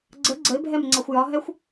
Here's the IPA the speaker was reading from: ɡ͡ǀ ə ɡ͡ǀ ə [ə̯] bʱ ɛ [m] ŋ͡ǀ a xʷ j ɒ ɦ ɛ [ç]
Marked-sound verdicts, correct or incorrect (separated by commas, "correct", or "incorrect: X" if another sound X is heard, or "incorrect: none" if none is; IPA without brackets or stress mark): incorrect: ɪ̯, correct, incorrect: xʷ